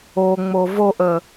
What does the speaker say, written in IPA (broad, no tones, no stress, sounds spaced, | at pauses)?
o ŋ͡m o v o ʔ ə